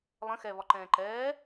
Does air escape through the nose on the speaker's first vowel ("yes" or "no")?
yes